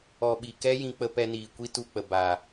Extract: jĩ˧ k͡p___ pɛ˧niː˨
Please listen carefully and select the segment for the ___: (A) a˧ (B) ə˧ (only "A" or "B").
B